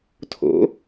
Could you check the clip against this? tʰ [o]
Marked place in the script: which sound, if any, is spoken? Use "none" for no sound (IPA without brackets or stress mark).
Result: o̰